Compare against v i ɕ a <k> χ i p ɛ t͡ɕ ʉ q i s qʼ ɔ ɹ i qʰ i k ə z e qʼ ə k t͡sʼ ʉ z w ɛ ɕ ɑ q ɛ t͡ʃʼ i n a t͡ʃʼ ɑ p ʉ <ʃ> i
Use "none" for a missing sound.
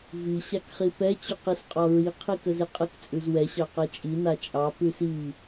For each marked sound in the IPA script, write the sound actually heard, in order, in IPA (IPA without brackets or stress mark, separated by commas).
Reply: k, s